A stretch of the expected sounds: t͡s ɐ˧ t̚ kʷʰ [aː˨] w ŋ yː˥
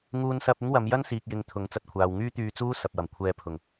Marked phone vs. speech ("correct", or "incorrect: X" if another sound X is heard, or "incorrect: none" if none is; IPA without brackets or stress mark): correct